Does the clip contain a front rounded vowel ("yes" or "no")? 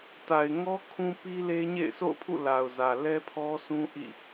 no